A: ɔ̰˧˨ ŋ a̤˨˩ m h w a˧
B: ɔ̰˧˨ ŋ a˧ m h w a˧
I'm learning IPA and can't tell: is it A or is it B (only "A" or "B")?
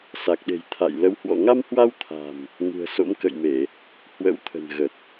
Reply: B